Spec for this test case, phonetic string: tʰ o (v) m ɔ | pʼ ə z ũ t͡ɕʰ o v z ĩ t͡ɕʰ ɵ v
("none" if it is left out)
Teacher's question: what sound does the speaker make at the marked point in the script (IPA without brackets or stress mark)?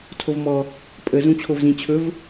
v